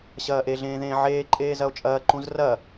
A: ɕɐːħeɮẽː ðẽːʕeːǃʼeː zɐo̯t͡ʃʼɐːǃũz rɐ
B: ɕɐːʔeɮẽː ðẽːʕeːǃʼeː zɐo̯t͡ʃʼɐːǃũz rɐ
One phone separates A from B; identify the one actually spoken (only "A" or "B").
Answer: B